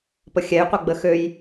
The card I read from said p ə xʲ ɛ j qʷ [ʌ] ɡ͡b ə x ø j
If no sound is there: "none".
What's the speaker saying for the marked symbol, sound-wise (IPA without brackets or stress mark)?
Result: ʌ